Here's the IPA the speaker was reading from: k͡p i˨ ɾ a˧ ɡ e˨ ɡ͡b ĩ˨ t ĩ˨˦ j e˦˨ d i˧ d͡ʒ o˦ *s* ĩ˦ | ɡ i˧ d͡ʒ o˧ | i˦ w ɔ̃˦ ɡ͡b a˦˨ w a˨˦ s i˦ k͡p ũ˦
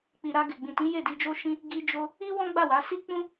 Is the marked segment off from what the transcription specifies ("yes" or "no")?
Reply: yes